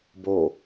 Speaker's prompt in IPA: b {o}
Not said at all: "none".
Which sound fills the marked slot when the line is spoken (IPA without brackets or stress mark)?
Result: o